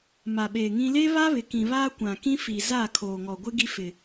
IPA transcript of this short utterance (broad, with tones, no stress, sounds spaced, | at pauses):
m a˨ ɓ eː˨ ŋ ĩ˦ l e˦ β a˦ β ɪ˨ k ĩ˨ β aː˦ kʷ ã˨ k ĩ˦ f i˨ z aː˦˨ kʰ oː˨ ŋ ɔ˨ ɡʷ ɪ˦ ɡ i˦ f ɪ˨